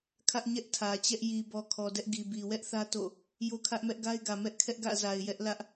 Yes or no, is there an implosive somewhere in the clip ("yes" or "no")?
no